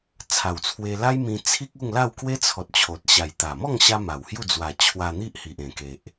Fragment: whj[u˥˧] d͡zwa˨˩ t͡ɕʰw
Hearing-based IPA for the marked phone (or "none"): u˥˧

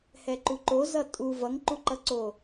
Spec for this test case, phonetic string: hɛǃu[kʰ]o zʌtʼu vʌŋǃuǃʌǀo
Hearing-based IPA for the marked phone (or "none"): ǃ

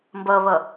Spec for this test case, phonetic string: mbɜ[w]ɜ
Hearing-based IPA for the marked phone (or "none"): β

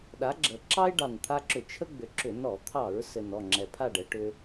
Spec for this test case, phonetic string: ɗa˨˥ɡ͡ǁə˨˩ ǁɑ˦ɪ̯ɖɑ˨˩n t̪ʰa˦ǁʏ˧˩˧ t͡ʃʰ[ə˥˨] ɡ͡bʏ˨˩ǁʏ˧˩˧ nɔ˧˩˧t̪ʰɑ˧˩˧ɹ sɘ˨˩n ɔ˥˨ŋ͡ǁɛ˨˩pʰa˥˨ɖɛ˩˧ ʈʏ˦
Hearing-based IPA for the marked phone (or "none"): ə˦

